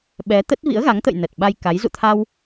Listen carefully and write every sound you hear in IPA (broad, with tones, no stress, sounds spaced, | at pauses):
ɓ ɛ˨˦ t̪ ə˦˥ t̚ v ḭ˧˥ ə̯ ɣ a˨˦ ŋ t̪ ə̰˧˨ j n ə˨˩ t̚ ɓ a˧ j k a˨˦ j z ṵ˧˨ t̪ʰ a˧ w